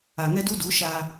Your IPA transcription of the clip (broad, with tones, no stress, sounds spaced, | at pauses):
a˨ ŋ ɛ˦ d u˦ d u˨˦ ʃ a˦